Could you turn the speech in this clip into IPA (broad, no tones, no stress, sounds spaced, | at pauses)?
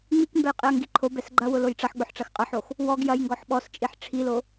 ŋ͡m i k m b ɛ j qʼ i ɐ̯ ŋ ɡ i ǃʰ o b ɛ s ɡ͡ǃ ɐ w ʊ l o j ʈ͡ʂ ɐ ħ ɡ͡b ʊ ħ ʈ͡ʂ ɐ x qʼ ɐ ħ o x | w ɔ ɡ j ɐ j ŋ ɡ ɔ ħ ɓ ɔ s t͡ʃʼ i ħ ʈ͡ʂʰ i l o